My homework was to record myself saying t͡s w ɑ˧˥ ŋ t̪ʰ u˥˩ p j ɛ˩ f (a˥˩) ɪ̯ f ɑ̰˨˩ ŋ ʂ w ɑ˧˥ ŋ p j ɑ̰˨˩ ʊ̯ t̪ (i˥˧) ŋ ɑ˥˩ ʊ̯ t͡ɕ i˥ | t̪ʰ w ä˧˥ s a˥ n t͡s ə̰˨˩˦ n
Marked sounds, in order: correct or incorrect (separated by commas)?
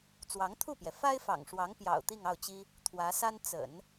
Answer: incorrect, correct